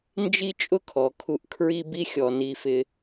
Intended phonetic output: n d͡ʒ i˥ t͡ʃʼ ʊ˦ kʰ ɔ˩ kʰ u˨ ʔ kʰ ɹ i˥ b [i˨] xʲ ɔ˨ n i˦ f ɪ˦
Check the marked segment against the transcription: incorrect: i˥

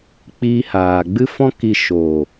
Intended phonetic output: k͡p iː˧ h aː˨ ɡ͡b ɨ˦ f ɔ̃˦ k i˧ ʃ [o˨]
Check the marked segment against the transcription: correct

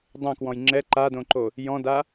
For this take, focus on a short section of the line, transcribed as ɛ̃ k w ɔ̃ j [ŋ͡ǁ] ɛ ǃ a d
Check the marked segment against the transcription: correct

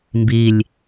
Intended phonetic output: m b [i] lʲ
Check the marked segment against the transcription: correct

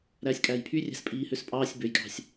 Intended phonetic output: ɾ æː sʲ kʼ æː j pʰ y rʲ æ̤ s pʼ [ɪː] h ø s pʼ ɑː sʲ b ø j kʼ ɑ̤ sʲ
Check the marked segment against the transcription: incorrect: iː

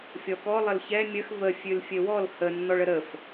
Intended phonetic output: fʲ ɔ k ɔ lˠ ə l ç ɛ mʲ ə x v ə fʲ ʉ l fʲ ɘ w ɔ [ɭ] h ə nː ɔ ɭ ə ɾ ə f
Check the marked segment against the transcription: incorrect: l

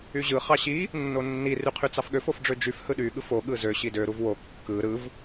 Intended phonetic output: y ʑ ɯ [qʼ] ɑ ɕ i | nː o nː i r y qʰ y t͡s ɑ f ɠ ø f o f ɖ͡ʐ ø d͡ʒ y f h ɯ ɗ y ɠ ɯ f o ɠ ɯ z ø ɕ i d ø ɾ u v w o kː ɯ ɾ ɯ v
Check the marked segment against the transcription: incorrect: χ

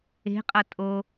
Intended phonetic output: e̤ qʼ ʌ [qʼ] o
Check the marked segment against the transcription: incorrect: tʼ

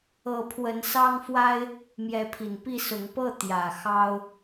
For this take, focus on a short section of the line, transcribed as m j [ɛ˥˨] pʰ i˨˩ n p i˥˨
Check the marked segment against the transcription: incorrect: ɛ˨˦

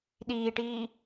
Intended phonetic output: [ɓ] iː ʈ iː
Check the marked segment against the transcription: incorrect: ɗ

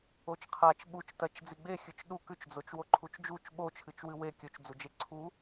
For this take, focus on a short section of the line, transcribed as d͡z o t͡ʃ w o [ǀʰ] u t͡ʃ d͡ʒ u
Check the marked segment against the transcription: incorrect: ǃʰ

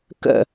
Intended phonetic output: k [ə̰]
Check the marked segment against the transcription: correct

